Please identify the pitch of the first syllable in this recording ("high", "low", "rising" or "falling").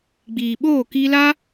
low